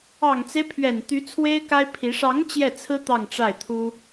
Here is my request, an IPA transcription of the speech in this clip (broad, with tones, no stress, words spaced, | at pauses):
ɑ˨˩ŋt͡se˦ɪ̯pʰɥɛ˨˩n t̪y˧˥ t͡sʰwe˥ɪ̯ka˥ɪ̯pʰi˧˥ ʂɑ˧˥ŋ t͡ɕjɛ˥˩t͡sʰɹ̩˥ t̪ɑ˥˧ŋʈ͡ʂa˥˩ɪ̯t̪ʰu˥